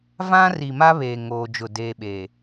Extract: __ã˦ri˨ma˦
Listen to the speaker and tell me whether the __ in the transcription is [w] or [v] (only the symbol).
v